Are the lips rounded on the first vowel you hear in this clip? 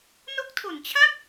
yes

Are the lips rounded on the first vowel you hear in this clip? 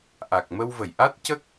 no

